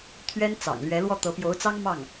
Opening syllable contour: high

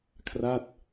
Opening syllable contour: falling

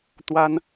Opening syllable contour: high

